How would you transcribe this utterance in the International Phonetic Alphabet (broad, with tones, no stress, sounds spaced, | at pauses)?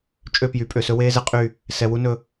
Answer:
t͡ʃʼ ø˦˨ p j y˨ pʼ ø˨ s ɵ˦ w eː˦ z ɛ˦ qʼ y˦˨ | s ɛ˨ w u˦ n ɵ˦